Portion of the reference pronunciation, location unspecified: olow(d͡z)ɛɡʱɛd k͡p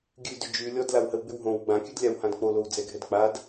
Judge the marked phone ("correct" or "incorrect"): correct